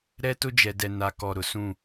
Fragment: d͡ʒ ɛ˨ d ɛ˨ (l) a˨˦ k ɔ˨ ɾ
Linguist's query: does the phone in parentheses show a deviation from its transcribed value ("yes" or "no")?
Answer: yes